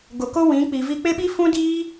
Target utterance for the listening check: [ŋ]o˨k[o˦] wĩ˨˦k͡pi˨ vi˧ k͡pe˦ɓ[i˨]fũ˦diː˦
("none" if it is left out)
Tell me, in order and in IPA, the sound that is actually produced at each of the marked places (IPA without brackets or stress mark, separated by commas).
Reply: ɡ, o˦, i˦